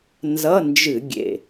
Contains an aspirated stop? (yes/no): no